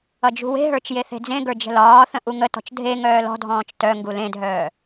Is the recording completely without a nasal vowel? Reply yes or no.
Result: no